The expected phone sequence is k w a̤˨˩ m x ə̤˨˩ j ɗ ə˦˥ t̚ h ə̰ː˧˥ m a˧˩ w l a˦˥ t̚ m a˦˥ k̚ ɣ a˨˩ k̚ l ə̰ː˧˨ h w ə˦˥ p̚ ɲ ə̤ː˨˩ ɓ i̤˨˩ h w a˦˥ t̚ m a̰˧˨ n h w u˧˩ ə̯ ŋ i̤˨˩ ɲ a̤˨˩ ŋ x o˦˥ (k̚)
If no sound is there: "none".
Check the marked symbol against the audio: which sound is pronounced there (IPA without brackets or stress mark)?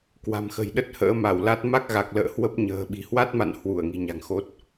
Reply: t̚